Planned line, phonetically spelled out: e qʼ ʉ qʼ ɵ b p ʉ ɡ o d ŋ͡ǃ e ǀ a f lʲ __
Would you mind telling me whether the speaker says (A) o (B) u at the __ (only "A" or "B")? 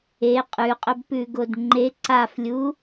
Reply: B